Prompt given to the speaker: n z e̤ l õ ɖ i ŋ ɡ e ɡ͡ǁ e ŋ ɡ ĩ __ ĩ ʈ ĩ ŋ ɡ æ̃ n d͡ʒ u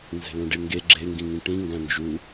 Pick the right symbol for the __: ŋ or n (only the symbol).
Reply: ŋ